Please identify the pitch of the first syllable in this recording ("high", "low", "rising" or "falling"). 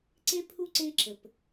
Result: high